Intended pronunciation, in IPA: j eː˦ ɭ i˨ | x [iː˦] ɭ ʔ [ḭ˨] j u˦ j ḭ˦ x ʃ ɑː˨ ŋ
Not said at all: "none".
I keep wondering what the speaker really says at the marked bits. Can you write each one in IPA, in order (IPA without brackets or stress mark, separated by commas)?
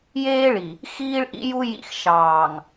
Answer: iː˦, ḭ˦